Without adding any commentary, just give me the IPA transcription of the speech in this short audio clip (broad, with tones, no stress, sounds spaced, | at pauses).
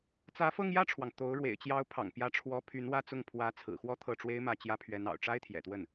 t͡s ä˧˥ f ɤ˥˧ ŋ j ä˥˩ ʈ͡ʂʰ w ɑ˩ ŋ t̪ o˧˥ ʊ̯ ɻ w ḛ˨˩ ɪ̯ t͡ɕ j ɑ˧˥ ʊ̯ pʰ ɑ̰˨˩ ŋ p j ä˧˥ ʈ͡ʂʰ w ɔ˥ pʰ y˧˥ n w ä˥˧ t͡s ʊ˥˩ ŋ pʰ w ä˧˥ t͡sʰ ɹ̩˨˩ x w ɔ˥˧ t̪ʰ ɤ˥˩ ʈ͡ʂ w e˥ ɪ̯ m ä˥˩ t͡ɕ j ä˥ pʰ ɥ ɛ˧˥ n ɑ̰˨˩ ʊ̯ ʈ͡ʂ a˥ ɪ̯ t̪ʰ j ɛ̰˨˩ t̪ w ə˥˩ n